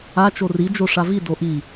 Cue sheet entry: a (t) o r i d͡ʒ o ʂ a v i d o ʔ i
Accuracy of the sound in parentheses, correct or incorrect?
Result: incorrect